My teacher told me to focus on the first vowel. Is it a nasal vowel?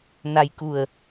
no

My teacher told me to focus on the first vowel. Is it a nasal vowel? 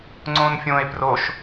yes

